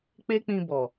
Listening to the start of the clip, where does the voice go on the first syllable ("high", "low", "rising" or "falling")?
high